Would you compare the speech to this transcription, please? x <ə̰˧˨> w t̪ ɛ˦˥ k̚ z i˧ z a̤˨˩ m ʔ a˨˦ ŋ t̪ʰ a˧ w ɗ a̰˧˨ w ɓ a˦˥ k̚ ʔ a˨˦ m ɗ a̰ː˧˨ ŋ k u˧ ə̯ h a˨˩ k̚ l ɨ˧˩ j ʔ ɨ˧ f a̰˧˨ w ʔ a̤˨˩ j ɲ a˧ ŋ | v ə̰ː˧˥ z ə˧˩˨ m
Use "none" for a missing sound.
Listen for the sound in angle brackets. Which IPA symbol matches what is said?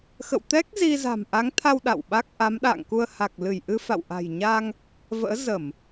ə̰˧˨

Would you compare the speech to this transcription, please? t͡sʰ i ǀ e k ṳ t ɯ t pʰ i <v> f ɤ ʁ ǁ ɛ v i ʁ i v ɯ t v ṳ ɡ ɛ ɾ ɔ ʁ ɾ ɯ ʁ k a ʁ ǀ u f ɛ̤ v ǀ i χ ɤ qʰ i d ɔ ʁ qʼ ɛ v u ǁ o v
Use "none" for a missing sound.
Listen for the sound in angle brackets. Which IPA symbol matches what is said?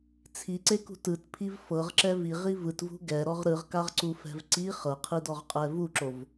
v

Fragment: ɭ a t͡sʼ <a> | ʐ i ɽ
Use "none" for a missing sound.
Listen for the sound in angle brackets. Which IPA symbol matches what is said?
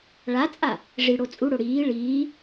a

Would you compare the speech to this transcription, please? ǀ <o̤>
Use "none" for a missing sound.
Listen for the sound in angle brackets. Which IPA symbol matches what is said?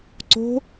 o̤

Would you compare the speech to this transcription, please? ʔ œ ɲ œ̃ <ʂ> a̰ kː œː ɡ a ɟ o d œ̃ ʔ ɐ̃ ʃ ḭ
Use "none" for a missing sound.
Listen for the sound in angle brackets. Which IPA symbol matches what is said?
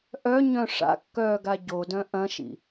ʂ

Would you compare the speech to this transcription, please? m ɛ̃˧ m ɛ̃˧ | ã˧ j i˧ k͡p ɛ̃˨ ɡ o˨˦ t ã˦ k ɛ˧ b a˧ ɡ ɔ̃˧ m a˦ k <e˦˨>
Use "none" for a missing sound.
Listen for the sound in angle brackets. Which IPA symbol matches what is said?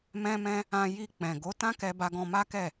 ɛ˦˨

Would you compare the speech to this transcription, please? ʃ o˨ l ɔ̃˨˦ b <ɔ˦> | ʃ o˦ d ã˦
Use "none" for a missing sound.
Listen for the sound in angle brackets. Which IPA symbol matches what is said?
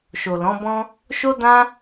ɔ̃˦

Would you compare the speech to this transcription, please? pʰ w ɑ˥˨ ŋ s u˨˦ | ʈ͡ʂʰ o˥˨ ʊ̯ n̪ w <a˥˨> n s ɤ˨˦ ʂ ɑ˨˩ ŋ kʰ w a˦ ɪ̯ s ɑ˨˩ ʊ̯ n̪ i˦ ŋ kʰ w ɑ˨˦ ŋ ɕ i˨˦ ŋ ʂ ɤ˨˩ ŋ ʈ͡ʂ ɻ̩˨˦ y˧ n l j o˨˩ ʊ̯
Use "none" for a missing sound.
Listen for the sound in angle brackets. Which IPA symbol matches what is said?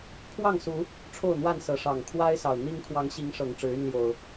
a˥˨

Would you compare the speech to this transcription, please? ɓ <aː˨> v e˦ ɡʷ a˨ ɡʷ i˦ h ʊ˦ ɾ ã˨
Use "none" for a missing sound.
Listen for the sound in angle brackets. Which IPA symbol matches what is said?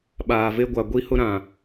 aː˨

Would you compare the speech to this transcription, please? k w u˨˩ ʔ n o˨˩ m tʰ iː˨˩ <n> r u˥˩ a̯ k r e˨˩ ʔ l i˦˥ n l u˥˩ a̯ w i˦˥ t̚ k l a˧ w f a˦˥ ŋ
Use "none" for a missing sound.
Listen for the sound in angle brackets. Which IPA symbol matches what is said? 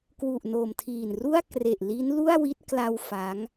n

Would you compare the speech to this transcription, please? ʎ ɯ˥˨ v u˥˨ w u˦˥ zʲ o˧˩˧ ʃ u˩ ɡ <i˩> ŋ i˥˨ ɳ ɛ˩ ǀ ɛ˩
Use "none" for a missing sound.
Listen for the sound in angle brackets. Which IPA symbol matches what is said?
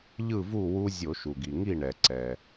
i˩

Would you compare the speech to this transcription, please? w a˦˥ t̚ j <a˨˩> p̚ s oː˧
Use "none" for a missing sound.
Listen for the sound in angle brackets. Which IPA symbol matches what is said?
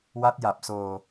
a˨˩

